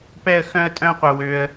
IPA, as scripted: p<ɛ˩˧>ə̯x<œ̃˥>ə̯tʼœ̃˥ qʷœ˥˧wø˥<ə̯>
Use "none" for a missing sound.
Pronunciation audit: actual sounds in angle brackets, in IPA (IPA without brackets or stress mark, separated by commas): ɛ˥˧, œ̃˥, ə̯